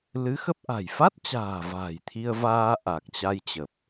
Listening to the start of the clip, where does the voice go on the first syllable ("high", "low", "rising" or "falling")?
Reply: rising